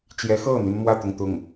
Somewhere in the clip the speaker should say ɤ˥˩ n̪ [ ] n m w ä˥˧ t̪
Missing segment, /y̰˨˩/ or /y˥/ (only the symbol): y˥